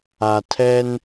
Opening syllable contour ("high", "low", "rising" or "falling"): low